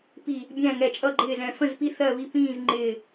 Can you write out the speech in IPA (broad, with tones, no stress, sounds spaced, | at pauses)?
p i˧˩ | bʲ æ̃˥˨ ŋ ɛ˧˩ t͡ʃʼ ʌ˥˨ ɡ͡ǃ ɪː˥˨ z ɛ̃˧˩ f ə̃˥˨ z p i˥˨ θ ɜ˥˨ β i˥˨ p ĩː˥˨ z ŋ͡ǃ ɪː˧˩